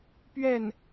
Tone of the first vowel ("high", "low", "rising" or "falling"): falling